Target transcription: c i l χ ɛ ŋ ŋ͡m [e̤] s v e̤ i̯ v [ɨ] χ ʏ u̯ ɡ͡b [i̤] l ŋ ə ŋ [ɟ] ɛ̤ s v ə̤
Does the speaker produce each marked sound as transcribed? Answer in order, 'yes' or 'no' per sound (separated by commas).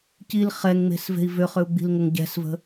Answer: yes, no, yes, yes